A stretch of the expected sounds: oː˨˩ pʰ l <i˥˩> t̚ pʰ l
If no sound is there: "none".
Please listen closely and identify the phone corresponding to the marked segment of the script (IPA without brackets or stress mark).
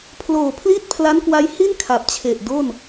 i˥˩